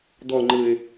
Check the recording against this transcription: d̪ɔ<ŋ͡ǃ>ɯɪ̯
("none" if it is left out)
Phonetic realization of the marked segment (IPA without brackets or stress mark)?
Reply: ŋ͡ǃ